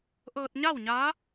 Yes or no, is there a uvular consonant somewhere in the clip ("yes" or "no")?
no